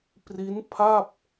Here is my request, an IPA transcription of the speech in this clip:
p r i˦˥ n pʰ a˥˩ p̚

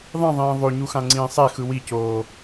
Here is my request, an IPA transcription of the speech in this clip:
ðˤ ĩ ðˤ ĩː ðˤ o ɲ u x ã ŋ͡ǀ ĩː sˤ e x ɯ w i c oː

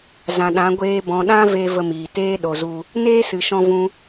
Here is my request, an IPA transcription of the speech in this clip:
z ã˨ ɗ ã˨˦ ɡʷ eː˧ b ɔ̃˨ ɗ ã˦ v e˧ v ə˧ m iː˨ t eː˦ ɗ o˨ z u˧ | n eː˦ s ɨ˨ ʃ ɔ̃˦ v ũ˦

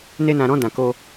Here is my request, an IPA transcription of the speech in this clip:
n e˦ n ã˧ ɾ ɔ̃˦ d ã˧ k o˦

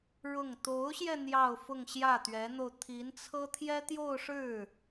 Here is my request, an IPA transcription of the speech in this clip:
ɻ ʊ˥˩ ŋ t̪ o˧˥ ʊ̯ ɕ j ɛ˧ n̪ j ɑ˥˧ ʊ̯ f ʊ˥˧ ŋ ɕ j ä˥˩ t̪ ɥ ɛ˧˥ n̪ o˧ ʊ̯ t̪ʰ i˧˥ n t͡sʰ ɤ˥ t̪ʰ j ɛ˥ t̪ j o˥˧ ʊ̯ ʂ ɻ̩˥˩

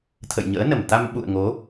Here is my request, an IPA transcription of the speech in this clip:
t̪ʰ ə̰˧˨ j ɲ ə̰ː˧˥ n ə˧˩ m t̪ a˧ m ɓ ṵ˧˨ ə̯ ŋ o˨˦

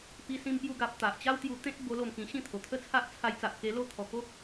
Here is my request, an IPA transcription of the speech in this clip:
p i˧ s ĩ˧ m p j u˧ ɡ a˨ p̚ t̪ a˨ ʔ t͡ɕ a˦ w t̪ j u˧ t̪ ẽ˦ t̚ b o˧ l o˥˧ m k ĩ˧ ɕ ĩ˥˧ t̪ʰ o˨˩ t̪ʰ ə˥˧ t͡sʰ a˦ ʔ t͡sʰ a˧ j t͡s a˨ ʔ k e˧ l o˥˧ t̪ʰ ɔ˨˩ k o˦ k̚

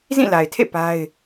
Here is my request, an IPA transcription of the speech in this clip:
z ĩ˦˨ l a˨ ɪ̯ tʰ ḛ˦˨ p a˦ ɪ̯

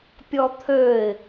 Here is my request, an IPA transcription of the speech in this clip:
pʲ ɔ t̪ʰ ø ɪ̯

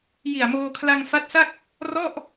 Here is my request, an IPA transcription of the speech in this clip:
j i˨˩ a̯ m oː˧ kʰ l a˧ ŋ f a˦˥ t̚ s a˥˩ k̚ | r ɔ˥˩ ʔ

